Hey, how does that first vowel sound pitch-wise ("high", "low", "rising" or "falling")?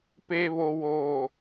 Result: low